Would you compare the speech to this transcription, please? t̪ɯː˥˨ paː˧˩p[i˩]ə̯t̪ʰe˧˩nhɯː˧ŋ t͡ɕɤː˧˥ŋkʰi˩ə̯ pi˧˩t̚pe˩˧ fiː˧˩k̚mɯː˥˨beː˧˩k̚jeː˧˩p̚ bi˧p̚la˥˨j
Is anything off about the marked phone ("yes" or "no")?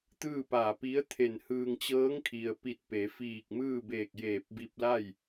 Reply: yes